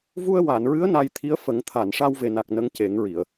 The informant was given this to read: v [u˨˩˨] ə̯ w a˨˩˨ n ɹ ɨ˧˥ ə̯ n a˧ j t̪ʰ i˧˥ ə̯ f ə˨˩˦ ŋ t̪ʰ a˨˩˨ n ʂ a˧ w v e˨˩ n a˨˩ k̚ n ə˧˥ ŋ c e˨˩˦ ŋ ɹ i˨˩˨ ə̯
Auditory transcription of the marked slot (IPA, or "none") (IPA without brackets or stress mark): u˧